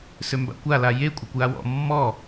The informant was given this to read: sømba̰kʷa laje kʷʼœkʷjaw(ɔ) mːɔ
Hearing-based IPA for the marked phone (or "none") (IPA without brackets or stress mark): ɔ̰